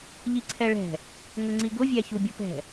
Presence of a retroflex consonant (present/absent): present